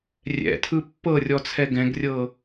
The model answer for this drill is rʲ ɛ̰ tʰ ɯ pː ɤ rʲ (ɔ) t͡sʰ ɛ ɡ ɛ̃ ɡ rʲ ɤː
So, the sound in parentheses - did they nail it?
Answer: yes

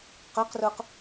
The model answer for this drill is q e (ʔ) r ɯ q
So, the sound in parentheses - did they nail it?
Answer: no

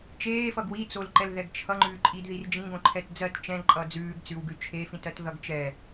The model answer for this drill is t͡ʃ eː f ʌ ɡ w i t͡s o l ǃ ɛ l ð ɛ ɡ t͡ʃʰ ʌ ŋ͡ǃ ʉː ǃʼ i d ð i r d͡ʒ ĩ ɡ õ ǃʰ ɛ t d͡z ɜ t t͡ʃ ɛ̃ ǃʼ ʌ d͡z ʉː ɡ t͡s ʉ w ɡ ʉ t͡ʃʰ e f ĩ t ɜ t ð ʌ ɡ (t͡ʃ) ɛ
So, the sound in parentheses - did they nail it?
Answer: yes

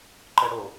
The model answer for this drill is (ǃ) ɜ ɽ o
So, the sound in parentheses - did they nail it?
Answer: yes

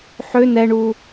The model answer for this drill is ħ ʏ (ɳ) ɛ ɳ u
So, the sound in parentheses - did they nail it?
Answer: no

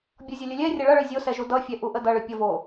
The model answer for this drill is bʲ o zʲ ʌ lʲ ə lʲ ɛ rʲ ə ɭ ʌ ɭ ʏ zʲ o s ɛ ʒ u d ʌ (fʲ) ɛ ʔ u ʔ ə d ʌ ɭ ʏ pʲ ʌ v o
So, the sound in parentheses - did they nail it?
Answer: yes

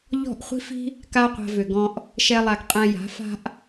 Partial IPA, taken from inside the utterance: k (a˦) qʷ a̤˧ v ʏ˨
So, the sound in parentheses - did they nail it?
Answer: yes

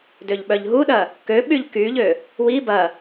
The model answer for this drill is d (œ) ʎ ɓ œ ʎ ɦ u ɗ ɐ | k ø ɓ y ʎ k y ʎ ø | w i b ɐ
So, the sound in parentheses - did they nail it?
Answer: no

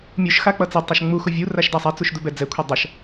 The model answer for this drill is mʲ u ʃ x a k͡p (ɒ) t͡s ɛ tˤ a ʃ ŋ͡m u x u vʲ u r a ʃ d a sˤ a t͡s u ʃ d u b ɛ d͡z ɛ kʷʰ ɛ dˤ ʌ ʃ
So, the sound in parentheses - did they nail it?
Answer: no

